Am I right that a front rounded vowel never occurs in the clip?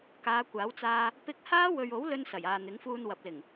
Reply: yes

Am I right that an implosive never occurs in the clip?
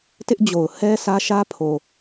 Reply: yes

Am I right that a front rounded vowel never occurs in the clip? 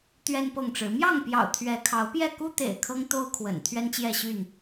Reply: no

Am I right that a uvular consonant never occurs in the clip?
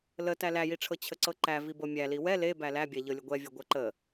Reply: yes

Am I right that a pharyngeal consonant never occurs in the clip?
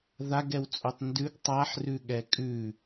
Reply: no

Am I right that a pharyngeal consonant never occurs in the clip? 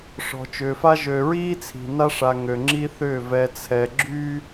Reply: yes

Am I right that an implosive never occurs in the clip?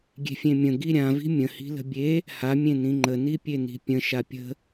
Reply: yes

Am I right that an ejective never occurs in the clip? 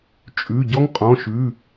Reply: no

